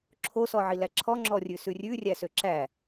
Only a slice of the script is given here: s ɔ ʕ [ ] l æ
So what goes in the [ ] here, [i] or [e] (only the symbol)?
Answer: i